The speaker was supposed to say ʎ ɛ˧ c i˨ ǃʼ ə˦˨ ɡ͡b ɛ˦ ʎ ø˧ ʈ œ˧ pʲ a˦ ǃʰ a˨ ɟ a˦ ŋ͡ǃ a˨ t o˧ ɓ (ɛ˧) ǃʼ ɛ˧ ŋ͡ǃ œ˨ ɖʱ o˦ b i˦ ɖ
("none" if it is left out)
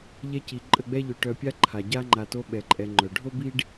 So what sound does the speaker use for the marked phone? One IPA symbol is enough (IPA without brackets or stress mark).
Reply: ɛ˧